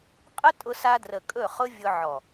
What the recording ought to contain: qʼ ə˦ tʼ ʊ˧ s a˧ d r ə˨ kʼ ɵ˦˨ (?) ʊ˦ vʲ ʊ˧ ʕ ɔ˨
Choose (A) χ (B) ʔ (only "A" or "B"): A